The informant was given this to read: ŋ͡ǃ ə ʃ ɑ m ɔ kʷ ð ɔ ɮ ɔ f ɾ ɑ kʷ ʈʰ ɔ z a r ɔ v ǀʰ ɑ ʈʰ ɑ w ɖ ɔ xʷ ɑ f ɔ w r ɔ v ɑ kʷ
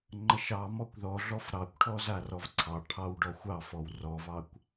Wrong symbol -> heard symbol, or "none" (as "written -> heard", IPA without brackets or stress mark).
none